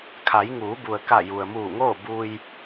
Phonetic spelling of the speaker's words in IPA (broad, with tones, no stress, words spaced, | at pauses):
kʰa˩˧jŋuː˩˧bu˩ə̯ka˧˩ ju˩ə̯muː˧˩ŋoː˥˨ bu˧j